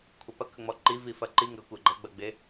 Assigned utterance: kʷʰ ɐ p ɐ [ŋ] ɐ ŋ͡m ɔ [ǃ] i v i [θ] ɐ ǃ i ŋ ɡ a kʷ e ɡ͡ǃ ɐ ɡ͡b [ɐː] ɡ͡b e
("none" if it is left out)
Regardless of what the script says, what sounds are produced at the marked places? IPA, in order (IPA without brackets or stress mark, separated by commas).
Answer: k, ǃ, f, ɐ